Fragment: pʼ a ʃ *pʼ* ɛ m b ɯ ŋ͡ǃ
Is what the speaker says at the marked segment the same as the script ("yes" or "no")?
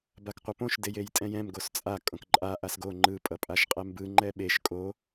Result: no